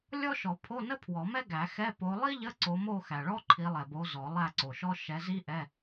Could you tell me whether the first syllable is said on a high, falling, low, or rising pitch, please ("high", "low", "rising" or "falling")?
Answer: high